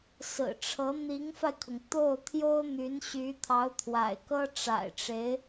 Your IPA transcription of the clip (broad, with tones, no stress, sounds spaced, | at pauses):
s ɹ̩˨˩ ʈ͡ʂʰ ɤ˧˥ n̪ i˧˥ ŋ f a˧ ɪ̯ kʰ ʊ˩ ŋ t̪ o˥˩ ʊ̯ t̪ʰ j o˥ ʊ̯ n̪ y˧˥ n ɕ y˧˥ t̪ʰ ɑ˧˥ ʊ̯ t̪ʰ w a̰˨˩ ɪ̯ k ɤ˥ ʈ͡ʂ a̰˨˩ ɪ̯ ʈ͡ʂ e˧˥ ɪ̯